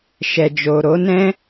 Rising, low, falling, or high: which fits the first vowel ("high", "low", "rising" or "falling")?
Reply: low